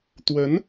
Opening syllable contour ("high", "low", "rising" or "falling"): rising